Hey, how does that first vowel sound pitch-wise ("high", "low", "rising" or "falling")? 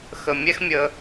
low